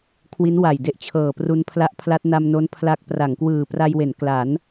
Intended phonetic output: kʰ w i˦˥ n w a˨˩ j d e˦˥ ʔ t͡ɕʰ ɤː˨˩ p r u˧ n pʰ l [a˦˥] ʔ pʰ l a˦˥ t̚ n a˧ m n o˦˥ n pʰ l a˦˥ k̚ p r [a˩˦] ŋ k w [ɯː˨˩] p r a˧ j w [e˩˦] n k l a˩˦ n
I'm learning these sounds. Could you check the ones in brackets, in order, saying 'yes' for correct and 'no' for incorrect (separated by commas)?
yes, yes, yes, yes